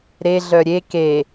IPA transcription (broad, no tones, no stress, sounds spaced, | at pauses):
ɾ e ɮ œ ɾʲ e k e